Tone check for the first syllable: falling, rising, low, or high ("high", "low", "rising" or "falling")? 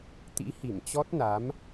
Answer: rising